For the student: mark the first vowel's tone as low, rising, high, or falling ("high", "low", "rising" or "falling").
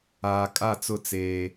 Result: low